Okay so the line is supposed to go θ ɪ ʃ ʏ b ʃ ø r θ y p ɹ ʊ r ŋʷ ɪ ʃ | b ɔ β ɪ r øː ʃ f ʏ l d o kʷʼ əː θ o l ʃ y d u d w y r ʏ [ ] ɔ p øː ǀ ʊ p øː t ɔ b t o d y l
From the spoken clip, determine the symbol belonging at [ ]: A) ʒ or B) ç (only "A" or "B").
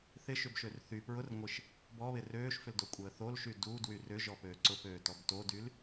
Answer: A